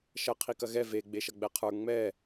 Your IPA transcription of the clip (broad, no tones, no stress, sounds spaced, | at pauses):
ʃ ɐ qʰ i k ɐ ɣ ɛ v e ɡ͡b e ʃ ɐ ɡ͡b ɛ qʰ ə˞ ŋ͡m ɛ